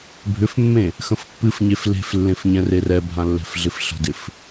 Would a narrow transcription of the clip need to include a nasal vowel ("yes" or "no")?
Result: yes